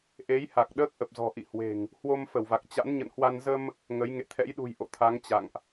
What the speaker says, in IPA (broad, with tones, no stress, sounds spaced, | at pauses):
ʔ e˨˦ j h a˨˩ k̚ ɗ əː˦˥ k̚ ʔ ə˨˩ p̚ z ɔ̤˨˩ ʔ ḭ˧˨ h w e̤˨˩ ŋ | h w o˧ m f ə˧˩ w v a˨˩ k̚ t͡ɕ a̰˧˥ n ɲ ə̰˧˨ n h w a˧ n z ə˧ m | ŋ ə˨˦ j ŋ ḛ˧˨ t̪ʰ ɛ̰˧˥ j ɗ ṳ˨˩ j ʔ o̰˧˨ t̪ʰ a˨˦ ŋ t͡ɕ a̰˧˨ ŋ ʔ